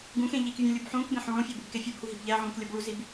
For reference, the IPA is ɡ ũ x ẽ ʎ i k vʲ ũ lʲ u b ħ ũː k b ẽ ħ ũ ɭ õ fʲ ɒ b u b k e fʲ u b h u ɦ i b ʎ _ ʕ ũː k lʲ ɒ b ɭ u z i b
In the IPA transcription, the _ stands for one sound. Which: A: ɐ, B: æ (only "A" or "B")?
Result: B